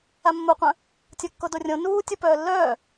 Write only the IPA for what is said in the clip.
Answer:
a mː o qʷ œ̃ | tʲ o kː o d o rʲ õ n uː tʲ o p œː lː œː

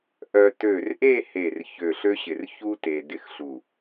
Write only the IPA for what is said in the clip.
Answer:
ʔ œ˧ t ø˧˩ r ʔ e˥˧ h e˧˩ r ç ø˧˩ ɬ ø˥ ɕ ɪ˧˩ r ç u˥ t e˧ d ɪ˥˧ x ɬ u˧˩

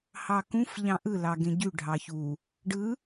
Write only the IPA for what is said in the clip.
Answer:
h ɑ k ũ f ʎ ɑ̃ ʔ ɯ l ɑ ɡ ẽ ɟ y ɖʱ ɑ ç u | ɖ ɯ

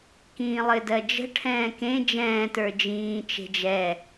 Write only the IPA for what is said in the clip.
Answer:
k ĩː lˠ ɘ d ɜ d͡ʒ ə̤ ʈʰ ɛ̃ː k ẽ d͡ʒ ɛ̃ː t ə˞ d͡ʒ ĩː t͡ʃ e̤ d͡ʒ ɛ

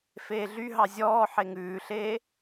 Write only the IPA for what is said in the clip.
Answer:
f eː ɮ y ɦ ɑ zʲ ɔː ħ e ŋ ʉː ɬ eː

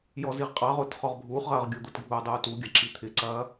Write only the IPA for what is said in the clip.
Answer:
j ɔ z i ʁ qʼ ɑ ʁ ʊː t χ ɔ ʁ bʱ uː χ ʁ ɐː ʁ ɡʲ ʊ d̪ ʊ t ɡʱ uː dˤ uː t u ɡʲ ɐ ǁ i t̪ʰ ɪ ǀ ɐː

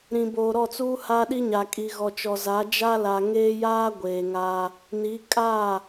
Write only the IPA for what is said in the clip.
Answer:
ɾ ĩ˨ b oː˨ ɾ ɔ˦˨ t͡s uː˦ h a˦ ɗ i˦ ɲ a˨ kʼ i˨ ɣ ɔ˨ t͡ʃ ɔ˨ z a˨˦ d͡ʒ a˦ l a˨ ŋ eː˦ j aː˦ ɡʷ eː˨ ŋ a˦ | n i˨˦ kʼ a˦˨

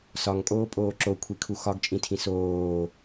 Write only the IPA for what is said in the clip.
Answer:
s ɒ ŋ kʼ oː pʼ oː ǁ o kʷʰ i kʰ u x ɒ ɡ t͡ʃʼ ĩ tʰ ĩ s oː

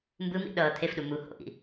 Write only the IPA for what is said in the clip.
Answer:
m b ɯ m ḭ ɗ ʌː t̪ʰ e f ɗ u m u h o̰ ʔ ḭ

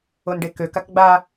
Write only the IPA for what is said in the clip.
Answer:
o n ɖ e k ø k a k ɡ͡b a

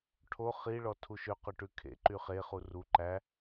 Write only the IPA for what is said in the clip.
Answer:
ʈʰ o χ i ɭ ɔ tʰ u ʃ ø q ø ʈ ʉ kʰ ḛ ǃ y χ e χ u r u ǃ æ

